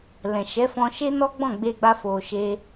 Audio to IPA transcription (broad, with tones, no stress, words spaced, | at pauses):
lɛ̃˨ʃɛ˨˦fɔ̃˧ʃe˦ nɔ˦ɡ͡bɔ̃˦˨ɡ͡be˧ɡ͡ba˧ fo˨ʃe˧